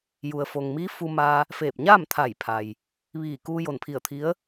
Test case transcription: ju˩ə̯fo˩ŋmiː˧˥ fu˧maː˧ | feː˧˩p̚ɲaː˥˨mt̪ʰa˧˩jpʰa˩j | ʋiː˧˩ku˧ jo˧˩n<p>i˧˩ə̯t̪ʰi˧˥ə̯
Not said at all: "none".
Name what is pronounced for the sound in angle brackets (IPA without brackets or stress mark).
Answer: pʰ